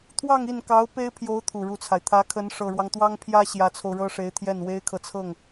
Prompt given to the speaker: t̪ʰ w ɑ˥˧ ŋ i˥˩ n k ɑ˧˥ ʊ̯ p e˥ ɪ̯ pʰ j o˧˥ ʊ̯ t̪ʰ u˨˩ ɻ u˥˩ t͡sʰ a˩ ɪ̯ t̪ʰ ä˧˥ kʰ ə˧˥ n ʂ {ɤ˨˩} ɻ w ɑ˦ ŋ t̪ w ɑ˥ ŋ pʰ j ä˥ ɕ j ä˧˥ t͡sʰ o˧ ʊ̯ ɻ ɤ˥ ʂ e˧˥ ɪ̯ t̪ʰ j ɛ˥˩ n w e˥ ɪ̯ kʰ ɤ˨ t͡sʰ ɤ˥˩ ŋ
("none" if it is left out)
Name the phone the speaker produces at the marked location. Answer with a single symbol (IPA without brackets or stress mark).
ɤ˨˩